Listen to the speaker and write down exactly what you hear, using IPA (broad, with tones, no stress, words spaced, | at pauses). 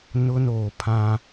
nʊ˦noː˨pʰã˦